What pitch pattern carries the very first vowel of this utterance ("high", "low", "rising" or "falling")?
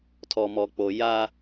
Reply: low